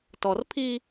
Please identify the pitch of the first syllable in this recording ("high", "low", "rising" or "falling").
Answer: low